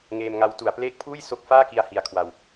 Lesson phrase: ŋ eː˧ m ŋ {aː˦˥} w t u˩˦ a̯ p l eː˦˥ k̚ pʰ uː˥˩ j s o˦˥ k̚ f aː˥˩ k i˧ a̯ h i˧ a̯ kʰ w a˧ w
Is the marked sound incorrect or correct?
incorrect